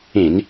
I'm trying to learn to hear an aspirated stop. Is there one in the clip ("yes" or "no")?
no